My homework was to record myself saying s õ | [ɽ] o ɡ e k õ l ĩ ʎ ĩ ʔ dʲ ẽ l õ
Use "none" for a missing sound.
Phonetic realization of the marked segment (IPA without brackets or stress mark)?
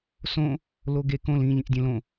l